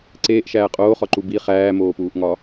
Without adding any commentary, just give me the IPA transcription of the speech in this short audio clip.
ǀeːʔʃæː qʼoːχɒǃu bi χæːmoːpuːʔŋɒ

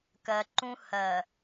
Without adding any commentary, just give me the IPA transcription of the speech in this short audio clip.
kɜ˨ǃũ˦ hɜ˨

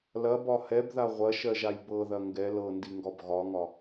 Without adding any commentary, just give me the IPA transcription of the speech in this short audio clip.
lɐbɒ hɛbða ʁʷɐʃɜʒaj bɤðɐ ŋɡɛ lɤndiŋɡɒb ɣɒŋɒ

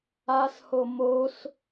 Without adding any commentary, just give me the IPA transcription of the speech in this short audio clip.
asho mos

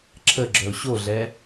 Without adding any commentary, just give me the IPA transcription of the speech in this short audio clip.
ǁʰəɡ͡ǁœʊ̯ ɕoɮɛ

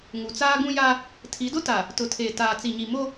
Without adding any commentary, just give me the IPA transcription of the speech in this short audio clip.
ŋu˨t͡saː˦ ɡũ˦ja˦ | tʰi˨˦dʊ˦ta˨ | tʊ˨tʰeː˨ taː˨t͡si˨ɲi˨mo˦

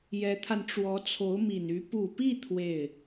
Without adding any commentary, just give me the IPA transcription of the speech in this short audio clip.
jɛ˧˥t̪ʰa˧n ʈ͡ʂwɔ˧˥t͡sʰo˧˥ʊ̯mi˨˩ny˧˥ pu˨˩pi˥˧ t̪ʰwe˥˩ɪ̯

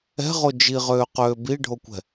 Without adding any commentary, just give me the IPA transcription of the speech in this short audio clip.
ɛ̤ʁo d͡ʒiʁøːqøː biɖʱokʷɛ̤

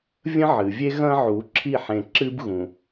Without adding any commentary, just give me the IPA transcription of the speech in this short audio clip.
vʲə̃˦ʕɨ˨vʲe˦ ɣɐ̃˦ʕu˨˦ ǁʰi˦˨ħẽ˨ǁɨ˦b ɣũ˨

